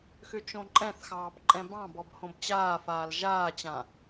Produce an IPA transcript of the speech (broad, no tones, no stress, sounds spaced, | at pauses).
x ʏ t͡ʃ õ ǃʼ ɛ̃ θ x ɑː b ǃʼ ɛ̃ b ɑ̃ b ɔ b h õ b t͡ɕ aː f aː l ʒ aː t͡ɕ ã